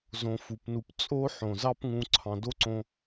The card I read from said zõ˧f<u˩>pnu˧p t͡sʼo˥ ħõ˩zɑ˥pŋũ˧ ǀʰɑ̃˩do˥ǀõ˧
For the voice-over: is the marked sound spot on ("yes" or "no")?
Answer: yes